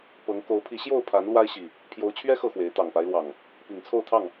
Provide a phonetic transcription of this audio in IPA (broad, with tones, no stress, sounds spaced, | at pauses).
p ɤ˨˦ ŋ k o˨˦ ʊ̯ pʰ i˨˦ ɕ j o˥˨ ʊ̯ pʰ a˨˦ n l w a˦ ɪ̯ ɕ i˨˩ | pʰ j o˨˦ ʊ̯ t͡ɕʰ ɥ ɛ˦ x ɤ˥˨ x w e˨˦ ɪ̯ t̪ ɑ˨˩ ŋ p a˦ ɪ̯ l w ɑ˨˩ ŋ | p i˨˩ ŋ t͡sʰ o˥˨ ʊ̯ t̪ʰ ɑ˥˨ ŋ